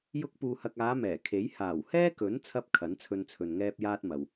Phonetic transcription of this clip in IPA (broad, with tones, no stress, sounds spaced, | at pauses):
j ʊ˥ k̚ p uː˧ h ɐ˧ k̚ aː˨˧ m ɛː˨˩ kʰ e˨˥ j h aː˨˩ w h ɛː˥ k ɵ˨˥ n t͡sʰ ɐ˥ p̚ kʰ ɐ˨˥ n t͡sʰ ɵ˧ n t͡sʰ ɵ˨ n ŋ ɛː˥ p̚ j aː˥ t̚ m ɐ˨ w